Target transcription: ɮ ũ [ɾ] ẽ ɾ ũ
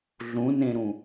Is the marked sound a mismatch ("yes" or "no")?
yes